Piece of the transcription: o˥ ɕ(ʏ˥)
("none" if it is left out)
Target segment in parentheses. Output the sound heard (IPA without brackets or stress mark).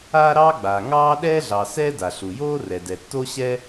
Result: ɛ˥